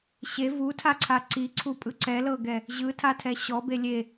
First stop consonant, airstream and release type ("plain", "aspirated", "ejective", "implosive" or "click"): aspirated